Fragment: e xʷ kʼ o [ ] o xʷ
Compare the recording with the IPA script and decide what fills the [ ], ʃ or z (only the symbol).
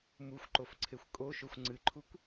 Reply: ʃ